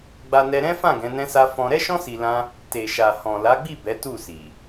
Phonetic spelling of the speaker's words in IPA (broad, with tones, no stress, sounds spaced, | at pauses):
ɡ͡b a˧ n ɛ˧ ɾ ɛ̃˦ f ã˦˨ ɡ ɛ̃˨˦ n ɛ̃˦ s a˦ f ɔ̃˧ ɾ ɛ˦ ʃ ɔ̃˦ s i˧ l ã˦ | t e˨ ʃ a˨ h ɔ̃˨ l a˨˦ ɡ͡b i˦˨ b ɛ˨˦ t u˦˨ s i˨